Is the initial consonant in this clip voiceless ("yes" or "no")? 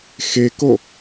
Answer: yes